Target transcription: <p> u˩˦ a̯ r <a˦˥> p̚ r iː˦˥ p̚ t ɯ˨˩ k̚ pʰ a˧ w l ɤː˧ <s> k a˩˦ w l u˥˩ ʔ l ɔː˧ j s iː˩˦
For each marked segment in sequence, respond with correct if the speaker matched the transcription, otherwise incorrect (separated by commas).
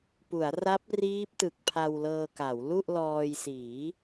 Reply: correct, correct, incorrect